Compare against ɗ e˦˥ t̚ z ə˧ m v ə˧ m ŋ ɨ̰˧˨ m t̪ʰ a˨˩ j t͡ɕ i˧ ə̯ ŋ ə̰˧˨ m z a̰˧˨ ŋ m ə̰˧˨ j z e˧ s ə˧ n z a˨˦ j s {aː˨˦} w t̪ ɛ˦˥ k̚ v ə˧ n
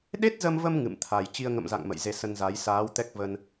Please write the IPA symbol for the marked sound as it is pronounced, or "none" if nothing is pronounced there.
aː˨˦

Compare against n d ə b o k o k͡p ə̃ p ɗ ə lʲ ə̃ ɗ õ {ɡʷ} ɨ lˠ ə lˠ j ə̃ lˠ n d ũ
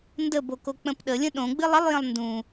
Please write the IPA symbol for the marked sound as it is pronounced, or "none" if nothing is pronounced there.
ɡ͡b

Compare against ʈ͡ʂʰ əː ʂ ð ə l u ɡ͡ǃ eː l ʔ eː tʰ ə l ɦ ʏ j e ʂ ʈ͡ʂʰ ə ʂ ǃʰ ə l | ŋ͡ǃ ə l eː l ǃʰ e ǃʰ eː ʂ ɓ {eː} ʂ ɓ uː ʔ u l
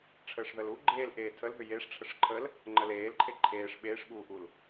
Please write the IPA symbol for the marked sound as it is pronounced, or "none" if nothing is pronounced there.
eː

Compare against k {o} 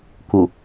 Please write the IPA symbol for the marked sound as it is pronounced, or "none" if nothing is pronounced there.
u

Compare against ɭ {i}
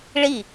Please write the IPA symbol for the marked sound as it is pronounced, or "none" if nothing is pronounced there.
i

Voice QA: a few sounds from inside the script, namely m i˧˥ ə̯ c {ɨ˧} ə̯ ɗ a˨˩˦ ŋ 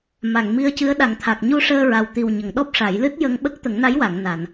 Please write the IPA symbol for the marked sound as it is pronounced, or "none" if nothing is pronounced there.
ɨ˧˥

